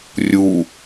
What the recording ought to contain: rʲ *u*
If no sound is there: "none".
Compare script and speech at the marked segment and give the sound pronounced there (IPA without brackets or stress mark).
u